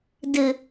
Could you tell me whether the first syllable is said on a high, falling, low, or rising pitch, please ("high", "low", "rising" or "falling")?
low